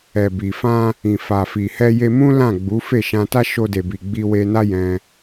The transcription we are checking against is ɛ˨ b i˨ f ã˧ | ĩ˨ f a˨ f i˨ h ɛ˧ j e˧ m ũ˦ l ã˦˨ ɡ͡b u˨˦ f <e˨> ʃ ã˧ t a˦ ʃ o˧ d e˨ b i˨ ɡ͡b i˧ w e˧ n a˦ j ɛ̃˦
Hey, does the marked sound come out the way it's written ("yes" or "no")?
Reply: no